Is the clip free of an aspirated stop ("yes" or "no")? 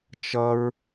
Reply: yes